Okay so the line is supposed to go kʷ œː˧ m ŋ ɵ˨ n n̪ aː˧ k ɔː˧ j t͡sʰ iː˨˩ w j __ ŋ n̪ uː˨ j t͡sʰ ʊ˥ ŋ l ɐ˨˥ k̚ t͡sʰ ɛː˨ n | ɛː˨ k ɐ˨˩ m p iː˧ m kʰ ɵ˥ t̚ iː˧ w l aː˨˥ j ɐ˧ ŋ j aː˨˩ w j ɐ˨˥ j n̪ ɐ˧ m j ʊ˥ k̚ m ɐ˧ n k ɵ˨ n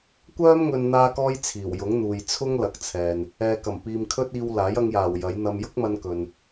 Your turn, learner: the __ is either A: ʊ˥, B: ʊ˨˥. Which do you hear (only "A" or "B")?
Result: B